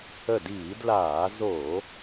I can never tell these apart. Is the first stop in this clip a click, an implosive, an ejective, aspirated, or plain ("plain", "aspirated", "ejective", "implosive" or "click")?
plain